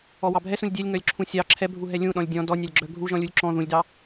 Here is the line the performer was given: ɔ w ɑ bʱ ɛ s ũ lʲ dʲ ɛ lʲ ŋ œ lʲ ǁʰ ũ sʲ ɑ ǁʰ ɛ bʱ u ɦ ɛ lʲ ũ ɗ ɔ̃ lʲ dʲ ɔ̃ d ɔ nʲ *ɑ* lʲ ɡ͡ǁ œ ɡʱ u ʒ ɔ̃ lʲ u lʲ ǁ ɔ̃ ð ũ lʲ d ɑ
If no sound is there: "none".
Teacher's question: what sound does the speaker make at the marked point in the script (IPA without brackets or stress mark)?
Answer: ɑ